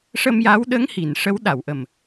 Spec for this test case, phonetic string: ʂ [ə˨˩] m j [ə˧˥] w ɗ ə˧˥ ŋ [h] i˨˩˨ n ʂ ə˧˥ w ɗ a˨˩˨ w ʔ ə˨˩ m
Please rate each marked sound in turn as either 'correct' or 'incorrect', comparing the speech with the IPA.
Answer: incorrect, incorrect, correct

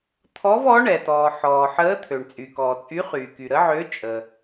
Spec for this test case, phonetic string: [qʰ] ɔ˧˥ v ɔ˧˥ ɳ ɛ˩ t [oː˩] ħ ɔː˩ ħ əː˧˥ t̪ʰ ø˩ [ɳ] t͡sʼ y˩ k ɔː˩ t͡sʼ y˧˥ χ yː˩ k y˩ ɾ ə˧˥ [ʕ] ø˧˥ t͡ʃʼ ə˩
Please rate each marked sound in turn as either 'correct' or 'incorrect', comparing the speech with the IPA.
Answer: incorrect, incorrect, correct, correct

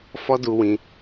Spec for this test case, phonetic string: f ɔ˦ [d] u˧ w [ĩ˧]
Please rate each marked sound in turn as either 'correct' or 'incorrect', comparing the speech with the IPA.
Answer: correct, correct

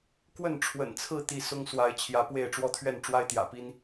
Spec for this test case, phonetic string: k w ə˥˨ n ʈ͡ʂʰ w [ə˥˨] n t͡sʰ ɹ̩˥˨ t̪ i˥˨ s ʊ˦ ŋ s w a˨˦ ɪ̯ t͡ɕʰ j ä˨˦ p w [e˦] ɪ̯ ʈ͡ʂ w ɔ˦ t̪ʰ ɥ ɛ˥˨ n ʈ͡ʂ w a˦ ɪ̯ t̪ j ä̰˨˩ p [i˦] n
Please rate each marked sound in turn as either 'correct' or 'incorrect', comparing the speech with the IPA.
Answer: incorrect, incorrect, correct

